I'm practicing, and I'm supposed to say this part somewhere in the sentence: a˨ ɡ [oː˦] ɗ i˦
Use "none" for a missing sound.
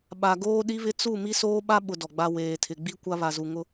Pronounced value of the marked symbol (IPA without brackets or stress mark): oː˦